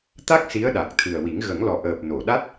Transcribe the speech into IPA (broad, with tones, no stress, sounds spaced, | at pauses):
t̪ a˦˥ k̚ s i˧˥ ə̯ ɗ a˨˩ k̚ t̪ʰ ɨ˨˩ ə̯ w i˨˩˦ ŋ ɣ ə˨˩˦ ŋ l ɔ˨˩ ʔ əː˨˩ p̚ n o˨˩˨ ɗ a˦˥ t̚